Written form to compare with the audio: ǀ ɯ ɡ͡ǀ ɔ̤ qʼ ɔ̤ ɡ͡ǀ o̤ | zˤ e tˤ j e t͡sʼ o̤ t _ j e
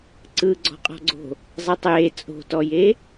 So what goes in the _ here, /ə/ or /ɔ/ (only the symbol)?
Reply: ɔ